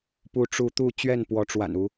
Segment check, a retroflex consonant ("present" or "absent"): present